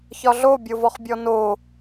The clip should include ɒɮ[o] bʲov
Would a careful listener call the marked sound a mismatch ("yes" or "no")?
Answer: no